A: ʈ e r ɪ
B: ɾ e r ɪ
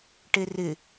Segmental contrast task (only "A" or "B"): A